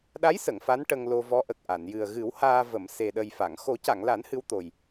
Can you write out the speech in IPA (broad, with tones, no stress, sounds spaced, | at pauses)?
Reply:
ɗ a˧˥ j s ə˨˩˨ ŋ f a˧˥ n ʈ ə˧ ŋ l o˧ v ɔ˧˥ ʔ ə˨˩ k̚ ʔ a˨˩˨ n j ɨ˨˩ ə̯ ɣ ɨ˨˩˦ w h aː˧ v ə˨˩˨ m s e˨˩ ɗ ə˨˩ j f a˨˩˨ ŋ x o˨˩˦ c a˨˩˨ ŋ l a˨˩˦ n h ɨ˧˥ w t̪ o˨˩ j